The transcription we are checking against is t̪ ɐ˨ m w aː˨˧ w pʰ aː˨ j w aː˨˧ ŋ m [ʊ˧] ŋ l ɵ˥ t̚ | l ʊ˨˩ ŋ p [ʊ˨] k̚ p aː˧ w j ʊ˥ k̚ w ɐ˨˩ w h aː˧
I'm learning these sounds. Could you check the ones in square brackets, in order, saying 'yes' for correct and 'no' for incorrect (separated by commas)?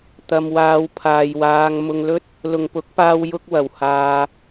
yes, no